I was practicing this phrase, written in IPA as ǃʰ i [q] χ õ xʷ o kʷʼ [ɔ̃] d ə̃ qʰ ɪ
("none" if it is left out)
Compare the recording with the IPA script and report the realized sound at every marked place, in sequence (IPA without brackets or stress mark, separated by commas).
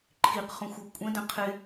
q, ə̃